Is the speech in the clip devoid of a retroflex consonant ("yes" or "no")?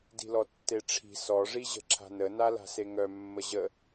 no